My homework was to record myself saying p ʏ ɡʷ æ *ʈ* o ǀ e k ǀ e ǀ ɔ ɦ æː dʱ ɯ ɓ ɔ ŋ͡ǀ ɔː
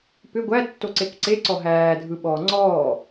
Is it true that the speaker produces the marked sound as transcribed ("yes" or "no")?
no